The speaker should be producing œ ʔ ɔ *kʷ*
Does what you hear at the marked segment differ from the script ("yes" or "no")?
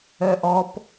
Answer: yes